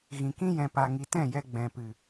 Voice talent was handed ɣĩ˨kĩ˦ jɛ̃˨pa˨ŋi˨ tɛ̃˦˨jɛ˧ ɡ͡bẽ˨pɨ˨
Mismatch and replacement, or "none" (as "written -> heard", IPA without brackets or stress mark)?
ẽ˨ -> ɛ̃˨